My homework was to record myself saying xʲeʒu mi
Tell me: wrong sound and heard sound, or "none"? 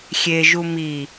none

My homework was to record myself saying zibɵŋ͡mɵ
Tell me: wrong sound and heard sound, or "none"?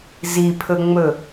b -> pʰ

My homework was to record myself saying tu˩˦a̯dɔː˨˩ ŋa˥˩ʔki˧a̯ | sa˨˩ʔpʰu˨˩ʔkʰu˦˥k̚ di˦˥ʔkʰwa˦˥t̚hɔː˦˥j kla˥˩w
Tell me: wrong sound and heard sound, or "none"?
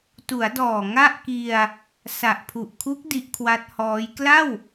none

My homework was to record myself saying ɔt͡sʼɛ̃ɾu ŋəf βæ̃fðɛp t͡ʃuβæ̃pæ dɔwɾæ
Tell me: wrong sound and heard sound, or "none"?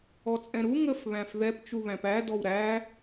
none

